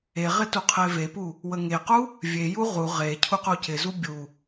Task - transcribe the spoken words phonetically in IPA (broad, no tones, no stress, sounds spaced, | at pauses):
e ʁ ɪ t u qʰ e v e p u | w ə ŋ e q u | vʲ e j u ʁ u ʁ e cʰ u q u c ɪ z u bʲ u